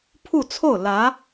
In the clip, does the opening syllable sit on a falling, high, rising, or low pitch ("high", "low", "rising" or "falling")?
falling